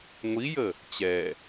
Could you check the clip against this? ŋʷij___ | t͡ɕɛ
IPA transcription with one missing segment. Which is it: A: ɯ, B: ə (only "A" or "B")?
B